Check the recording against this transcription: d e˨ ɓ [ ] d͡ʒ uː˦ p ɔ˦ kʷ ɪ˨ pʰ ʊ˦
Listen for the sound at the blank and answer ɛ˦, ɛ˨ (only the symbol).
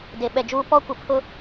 ɛ˨